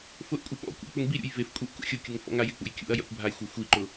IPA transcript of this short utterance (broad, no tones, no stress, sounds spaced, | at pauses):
f ʊ ʔ kʷʼ ɪ ɓ ɔ̰ kʷ a̰ k͡p ʊ ŋ b i ɾʲ ṵ j v e f kʷʼ e ʔ k ṵ xʲ ʊ kʲ ʊ ŋ f ɔ̰ ŋ a j ɪ k͡p ṵ j kʲ ṵ ɐ̯ j a̰ kʷ bʱ a j xʷ a xʷ i ǃ ʊ